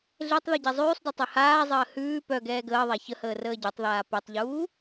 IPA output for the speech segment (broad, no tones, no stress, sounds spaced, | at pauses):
ɮ e tˤ ð ʉ ɟ ɛ zˤ ʉː sˤ d u tˤ ʉ h aː zˤ əː h ʉː p œ ɡ ɛː ɡ əː ðˤ a ç ə h əː r əː ɟ ə˞ tˤ ð aː p e tˤ ʎ uː